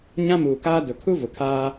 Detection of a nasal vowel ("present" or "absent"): present